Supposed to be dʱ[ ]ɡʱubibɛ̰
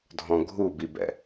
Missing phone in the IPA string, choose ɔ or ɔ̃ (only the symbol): ɔ̃